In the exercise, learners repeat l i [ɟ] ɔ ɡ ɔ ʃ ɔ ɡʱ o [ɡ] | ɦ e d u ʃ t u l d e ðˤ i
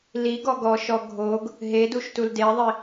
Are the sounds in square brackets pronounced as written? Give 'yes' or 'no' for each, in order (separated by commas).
no, yes